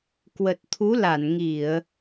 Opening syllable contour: low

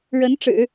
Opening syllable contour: rising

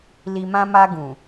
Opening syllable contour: low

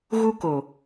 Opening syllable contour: high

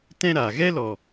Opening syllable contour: high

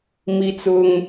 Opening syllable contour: high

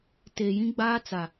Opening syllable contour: low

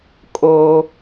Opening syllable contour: high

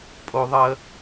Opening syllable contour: high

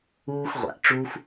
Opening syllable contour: high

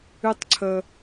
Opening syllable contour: high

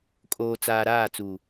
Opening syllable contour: low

